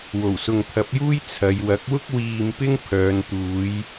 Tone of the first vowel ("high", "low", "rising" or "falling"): low